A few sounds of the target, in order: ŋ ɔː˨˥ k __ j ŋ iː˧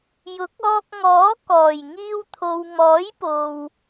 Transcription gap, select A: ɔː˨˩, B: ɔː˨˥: A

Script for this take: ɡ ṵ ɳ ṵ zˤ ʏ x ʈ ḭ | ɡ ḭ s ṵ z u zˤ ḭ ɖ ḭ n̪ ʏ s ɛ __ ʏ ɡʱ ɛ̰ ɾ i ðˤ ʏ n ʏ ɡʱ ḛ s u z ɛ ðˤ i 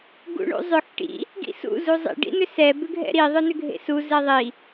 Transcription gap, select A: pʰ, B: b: B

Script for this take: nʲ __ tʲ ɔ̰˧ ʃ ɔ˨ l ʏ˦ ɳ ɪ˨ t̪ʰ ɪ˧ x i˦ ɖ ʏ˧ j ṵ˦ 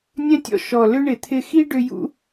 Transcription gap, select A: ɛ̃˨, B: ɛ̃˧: B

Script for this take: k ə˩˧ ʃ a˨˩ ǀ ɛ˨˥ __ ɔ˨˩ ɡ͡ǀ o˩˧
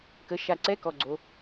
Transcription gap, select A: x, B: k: B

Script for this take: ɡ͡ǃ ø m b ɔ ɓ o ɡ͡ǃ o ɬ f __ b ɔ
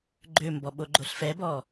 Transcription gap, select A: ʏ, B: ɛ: B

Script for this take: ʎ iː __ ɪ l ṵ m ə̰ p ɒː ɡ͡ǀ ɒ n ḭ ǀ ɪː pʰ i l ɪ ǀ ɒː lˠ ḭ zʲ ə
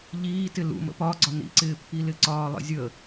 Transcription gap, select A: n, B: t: B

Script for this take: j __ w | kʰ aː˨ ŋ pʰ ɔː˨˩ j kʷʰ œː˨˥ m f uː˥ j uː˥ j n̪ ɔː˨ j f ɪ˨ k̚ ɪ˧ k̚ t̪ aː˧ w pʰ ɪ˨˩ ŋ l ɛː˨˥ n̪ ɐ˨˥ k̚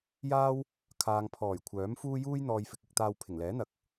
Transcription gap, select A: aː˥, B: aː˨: A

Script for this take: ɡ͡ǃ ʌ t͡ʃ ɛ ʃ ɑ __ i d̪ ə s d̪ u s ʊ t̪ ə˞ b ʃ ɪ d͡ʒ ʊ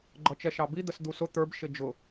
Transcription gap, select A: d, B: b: B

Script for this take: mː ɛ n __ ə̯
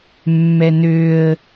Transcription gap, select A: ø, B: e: A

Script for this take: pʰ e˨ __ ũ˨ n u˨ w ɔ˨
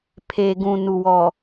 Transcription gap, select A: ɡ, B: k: A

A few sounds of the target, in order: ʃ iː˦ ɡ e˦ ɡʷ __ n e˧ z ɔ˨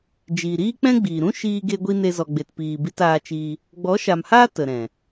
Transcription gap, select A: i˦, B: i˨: A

